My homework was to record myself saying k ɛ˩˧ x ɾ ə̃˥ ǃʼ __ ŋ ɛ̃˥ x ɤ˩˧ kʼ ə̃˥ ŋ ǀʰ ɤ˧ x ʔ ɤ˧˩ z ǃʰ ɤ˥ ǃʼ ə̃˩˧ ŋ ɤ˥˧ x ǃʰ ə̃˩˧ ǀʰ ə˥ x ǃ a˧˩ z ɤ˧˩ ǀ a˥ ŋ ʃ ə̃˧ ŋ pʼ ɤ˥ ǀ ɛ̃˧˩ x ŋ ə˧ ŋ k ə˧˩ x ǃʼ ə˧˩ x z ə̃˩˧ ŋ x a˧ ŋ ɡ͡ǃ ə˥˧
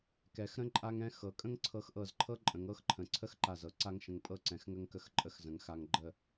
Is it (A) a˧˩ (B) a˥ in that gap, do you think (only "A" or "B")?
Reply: B